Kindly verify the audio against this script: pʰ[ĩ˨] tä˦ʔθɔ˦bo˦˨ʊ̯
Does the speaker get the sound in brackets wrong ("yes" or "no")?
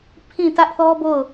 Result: yes